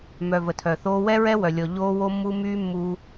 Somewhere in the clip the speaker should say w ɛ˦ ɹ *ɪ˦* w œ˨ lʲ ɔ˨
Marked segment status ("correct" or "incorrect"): incorrect